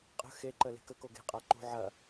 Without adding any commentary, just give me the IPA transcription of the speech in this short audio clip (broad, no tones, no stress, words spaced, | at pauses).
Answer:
qʼə̤ xeǃə le̤kə koɡe̤ qʼaǃṳ ʕɐ